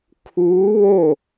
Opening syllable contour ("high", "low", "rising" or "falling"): rising